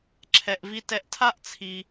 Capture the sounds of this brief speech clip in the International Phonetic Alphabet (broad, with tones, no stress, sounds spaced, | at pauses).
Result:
ǁʰ ɛ˩ ʔ v i˧ t ɛ˧ ʔ tʰ a˥ ʔ t͡sʰ i˩